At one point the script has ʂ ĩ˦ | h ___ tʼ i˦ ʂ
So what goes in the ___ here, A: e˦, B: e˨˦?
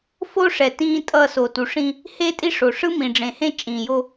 A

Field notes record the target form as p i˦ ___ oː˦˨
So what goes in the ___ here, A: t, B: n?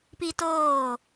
A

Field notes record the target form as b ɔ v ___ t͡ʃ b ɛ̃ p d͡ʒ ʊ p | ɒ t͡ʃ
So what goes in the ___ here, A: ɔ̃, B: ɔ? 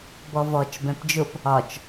B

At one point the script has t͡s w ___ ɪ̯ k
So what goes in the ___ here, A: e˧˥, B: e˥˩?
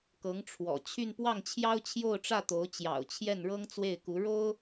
B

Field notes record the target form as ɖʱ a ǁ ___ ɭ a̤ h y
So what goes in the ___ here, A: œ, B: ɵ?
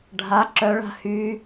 A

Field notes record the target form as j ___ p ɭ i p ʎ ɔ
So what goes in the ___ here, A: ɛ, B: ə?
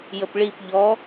B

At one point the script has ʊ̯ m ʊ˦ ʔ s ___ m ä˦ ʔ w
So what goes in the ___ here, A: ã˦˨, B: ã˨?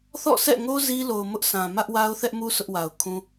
B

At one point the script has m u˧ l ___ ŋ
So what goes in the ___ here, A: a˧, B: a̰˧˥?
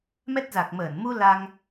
A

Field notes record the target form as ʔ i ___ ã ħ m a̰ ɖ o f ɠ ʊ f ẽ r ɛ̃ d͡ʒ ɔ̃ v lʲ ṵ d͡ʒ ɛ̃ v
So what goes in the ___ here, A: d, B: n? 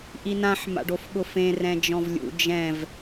B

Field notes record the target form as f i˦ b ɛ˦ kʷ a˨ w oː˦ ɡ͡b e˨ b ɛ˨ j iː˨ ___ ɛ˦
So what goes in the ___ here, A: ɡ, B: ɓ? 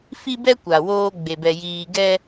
A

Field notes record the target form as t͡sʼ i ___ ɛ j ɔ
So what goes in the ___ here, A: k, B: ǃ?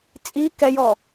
A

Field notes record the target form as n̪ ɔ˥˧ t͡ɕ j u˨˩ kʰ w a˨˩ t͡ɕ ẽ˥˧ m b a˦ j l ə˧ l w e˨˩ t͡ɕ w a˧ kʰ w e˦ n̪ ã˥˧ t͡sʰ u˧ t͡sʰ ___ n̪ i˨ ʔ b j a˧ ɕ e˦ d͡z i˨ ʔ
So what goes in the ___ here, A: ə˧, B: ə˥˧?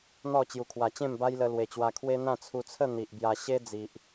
B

